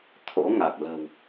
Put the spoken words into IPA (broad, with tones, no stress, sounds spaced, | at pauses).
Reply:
t̪ʰ o̰˧˥ ŋ a˨˩ k̚ l ə̤˨˩ w